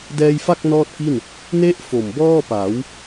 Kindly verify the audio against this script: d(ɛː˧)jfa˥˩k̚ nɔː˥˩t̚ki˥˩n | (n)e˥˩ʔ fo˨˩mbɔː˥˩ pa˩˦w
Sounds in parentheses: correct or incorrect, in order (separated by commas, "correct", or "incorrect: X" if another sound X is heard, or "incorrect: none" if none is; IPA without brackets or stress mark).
correct, correct